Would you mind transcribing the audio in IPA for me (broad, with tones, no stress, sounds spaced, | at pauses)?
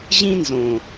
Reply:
ʑ ĩ˦ n z õ˨